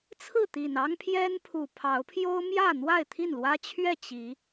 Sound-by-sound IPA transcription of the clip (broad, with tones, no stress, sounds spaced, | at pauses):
t͡sʰ ɹ̩˥˨ t̪ i˨˩ n ɑ˦ ŋ pʰ j ɛ˦ n pʰ u˨˩ pʰ ɑ˨˦ ʊ̯ pʰ j o˦ ʊ̯ m j ä˥˨ n̪ w a˥˨ ɪ̯ t̪ʰ i˥˨ n l w ä˦ t͡ɕʰ ɥ ɛ˥˨ t͡ɕ i˨˦